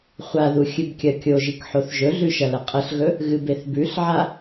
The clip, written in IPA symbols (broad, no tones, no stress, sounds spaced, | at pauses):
χʷ a ð u xʲ ɨ b kʲ ɐ kʲ o ʒ i k ħ o θ ʒ ɵ ɮ ʉ ʃ ɐ l ɐ qʼ ɐ ɬ ɣ ɵ | ɣ ɨ b e θ b ʉ ɬ ʕ a